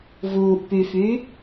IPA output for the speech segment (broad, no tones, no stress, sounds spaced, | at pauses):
v uː ʔ p y f yː